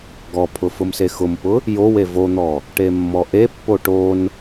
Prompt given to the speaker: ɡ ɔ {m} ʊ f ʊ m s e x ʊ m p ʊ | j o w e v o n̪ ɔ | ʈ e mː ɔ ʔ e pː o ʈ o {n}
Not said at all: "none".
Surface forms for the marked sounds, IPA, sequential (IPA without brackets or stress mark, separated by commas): pʰ, n